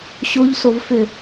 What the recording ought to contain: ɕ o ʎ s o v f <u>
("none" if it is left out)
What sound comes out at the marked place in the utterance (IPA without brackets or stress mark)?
ʏ